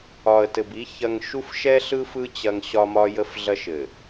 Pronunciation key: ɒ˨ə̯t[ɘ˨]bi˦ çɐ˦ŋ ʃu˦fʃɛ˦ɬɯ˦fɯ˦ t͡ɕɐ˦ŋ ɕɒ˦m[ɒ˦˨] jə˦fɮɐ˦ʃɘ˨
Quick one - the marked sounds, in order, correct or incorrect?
correct, incorrect

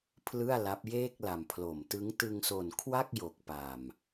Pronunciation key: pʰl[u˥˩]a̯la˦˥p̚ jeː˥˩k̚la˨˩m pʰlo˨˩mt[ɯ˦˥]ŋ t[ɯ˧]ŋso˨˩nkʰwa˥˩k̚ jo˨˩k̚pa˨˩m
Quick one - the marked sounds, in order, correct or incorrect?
incorrect, correct, correct

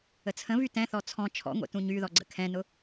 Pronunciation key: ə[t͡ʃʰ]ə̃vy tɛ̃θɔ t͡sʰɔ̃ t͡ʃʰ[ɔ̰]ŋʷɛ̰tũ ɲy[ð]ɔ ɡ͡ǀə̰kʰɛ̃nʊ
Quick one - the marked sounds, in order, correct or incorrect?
incorrect, correct, correct

